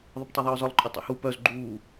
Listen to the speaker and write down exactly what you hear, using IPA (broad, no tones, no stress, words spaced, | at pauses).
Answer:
ðˤəptˤœðˤœːzɒlˠ ǃʼœtˤḛhu pœz ɡ͡ǃuː